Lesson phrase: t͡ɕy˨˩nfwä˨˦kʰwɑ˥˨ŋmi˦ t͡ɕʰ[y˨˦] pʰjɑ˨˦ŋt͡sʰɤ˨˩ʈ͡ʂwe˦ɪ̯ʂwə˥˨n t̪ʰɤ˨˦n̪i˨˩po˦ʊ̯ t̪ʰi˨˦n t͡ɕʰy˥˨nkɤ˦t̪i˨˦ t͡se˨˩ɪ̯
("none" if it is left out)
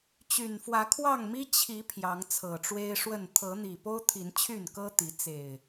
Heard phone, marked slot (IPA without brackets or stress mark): i˨˦